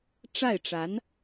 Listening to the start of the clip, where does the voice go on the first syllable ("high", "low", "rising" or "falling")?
falling